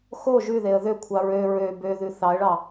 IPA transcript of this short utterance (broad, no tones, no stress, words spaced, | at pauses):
xo ʒʉðeə̯ ðøkʷʰɑ ɹø ɹø bøðʉ θɑə̯ɭɑ